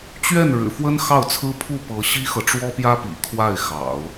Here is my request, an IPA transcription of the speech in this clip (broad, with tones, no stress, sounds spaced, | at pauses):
t͡ɕ ɥ ɛ˥˩ n ɻ ɻ̩˨˩ f w ə˥ n x ɑ˥˩ ʊ̯ t͡sʰ ɹ̩˥ pʰ u˥˩ p ɤ˧˥ ɕ i˥ x ɤ˨ ʈ͡ʂ w ɔ˥ p j ä˥ p ḭ˨˩ kʰ w a˥˩ ɪ̯ x ɑ̰˨˩˦ ʊ̯